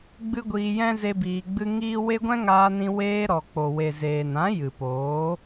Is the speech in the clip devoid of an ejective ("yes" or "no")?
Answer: yes